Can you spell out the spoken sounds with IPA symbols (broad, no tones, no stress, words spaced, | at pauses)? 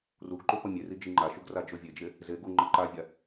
ruɡǃu pʌmʲeri d͡ʒiŋ͡ǃaʃuɡ rad͡ʒovʲed͡ʒe | zeɡu ŋ͡ǃʌǃavʲa